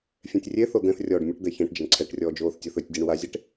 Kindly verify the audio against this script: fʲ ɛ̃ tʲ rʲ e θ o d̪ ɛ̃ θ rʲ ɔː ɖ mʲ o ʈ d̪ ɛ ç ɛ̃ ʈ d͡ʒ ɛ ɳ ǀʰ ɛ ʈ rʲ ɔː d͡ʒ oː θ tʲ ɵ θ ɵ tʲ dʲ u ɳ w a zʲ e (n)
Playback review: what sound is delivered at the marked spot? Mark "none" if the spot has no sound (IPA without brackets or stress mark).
ʈ